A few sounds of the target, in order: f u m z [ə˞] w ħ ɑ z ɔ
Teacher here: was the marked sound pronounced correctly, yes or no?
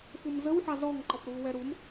no